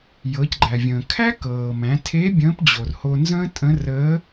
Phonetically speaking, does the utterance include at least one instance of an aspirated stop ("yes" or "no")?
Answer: yes